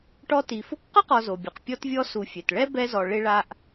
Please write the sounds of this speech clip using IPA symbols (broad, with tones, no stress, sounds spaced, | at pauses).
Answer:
ʈ ɔ˦ t i˨ f ʊ˥ k q ʊ˥ q ɔ˨ z o˩ bʲ ʊ˩ q pʲ ɔ˦ t vʲ ɔ˦ s u˨ fʲ ɛ˩ t ɭ ɛ˥ b ɛ˦ z ɔ˨ ɭ ɪ˥ ɭ a˥ ʔ